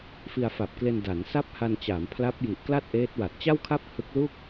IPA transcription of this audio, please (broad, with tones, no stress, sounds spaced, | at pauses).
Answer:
f i˧ a̯ f a˨˩ p̚ k l e˧ n d a˩˦ n s a˥˩ p̚ h a˧ n t͡ɕ aː˩˦ m pʰ l a˦˥ p̚ j i˨˩ ʔ k l a˥˩ t̚ ʔ eː˦˥ t̚ w a˨˩ t̚ t͡ɕ a˥˩ w kʰ a˥˩ p̚ h ɯ˦˥ k̚ l u˥˩ k̚